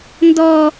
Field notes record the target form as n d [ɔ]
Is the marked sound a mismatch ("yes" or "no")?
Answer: no